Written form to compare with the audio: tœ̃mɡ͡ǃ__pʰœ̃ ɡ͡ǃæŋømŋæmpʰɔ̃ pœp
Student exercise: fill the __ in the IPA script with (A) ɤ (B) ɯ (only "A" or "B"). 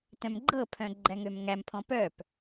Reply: A